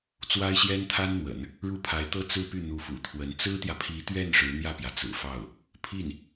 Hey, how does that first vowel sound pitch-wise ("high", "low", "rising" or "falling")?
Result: high